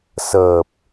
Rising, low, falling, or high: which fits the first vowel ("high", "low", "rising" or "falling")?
low